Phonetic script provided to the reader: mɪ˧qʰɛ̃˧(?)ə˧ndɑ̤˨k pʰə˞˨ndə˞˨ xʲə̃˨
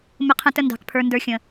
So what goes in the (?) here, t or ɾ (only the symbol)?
t